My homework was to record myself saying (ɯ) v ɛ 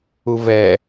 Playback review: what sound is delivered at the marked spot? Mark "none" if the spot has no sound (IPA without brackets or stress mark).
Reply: u